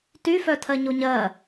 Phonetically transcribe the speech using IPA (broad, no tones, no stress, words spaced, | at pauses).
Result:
tyfœtʰɜɲo ɲɜ